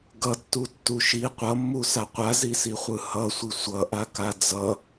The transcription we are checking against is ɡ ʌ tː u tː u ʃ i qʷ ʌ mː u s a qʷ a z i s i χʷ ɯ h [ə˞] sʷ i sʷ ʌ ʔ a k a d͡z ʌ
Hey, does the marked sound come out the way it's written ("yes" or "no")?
no